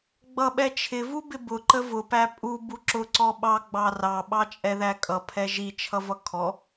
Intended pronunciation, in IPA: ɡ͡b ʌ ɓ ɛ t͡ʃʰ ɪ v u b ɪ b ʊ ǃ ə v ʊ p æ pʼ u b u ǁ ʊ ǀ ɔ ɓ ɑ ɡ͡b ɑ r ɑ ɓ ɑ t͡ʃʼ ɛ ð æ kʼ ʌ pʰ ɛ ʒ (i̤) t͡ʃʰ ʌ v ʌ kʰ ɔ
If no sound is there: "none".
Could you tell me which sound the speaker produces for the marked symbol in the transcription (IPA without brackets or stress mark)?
i